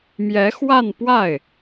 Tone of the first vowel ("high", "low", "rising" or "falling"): rising